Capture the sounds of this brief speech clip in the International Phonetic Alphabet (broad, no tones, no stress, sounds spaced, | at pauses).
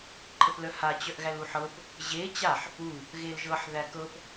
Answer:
ǃʰ ə p l œ h a t͡ɕ œ ʔ ɣ æ l u ħ ɤ p | ʑ e t͡ɕ a ħ | u | ɣ e l ʒ ɤ ħ ð æ k ɤ p